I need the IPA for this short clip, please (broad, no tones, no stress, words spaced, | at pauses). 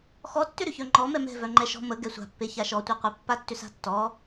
xɔtːʏɾʏçœ ŋ͡ǃɔ mɛmɛ̤vœ ŋ͡ǃɛʃɔ̤ mə ɡɛsʷa̤pːe çaʃɔtʷɛqʷe pːatːʏsa̤tːɔ